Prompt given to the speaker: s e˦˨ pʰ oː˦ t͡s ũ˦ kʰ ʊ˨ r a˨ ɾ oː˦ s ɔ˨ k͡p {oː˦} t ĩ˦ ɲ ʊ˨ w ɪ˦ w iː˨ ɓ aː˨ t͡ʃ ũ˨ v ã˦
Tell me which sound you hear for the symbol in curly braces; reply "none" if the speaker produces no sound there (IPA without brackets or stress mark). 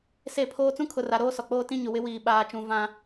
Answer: oː˦